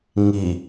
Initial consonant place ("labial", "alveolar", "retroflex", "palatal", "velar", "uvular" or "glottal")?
velar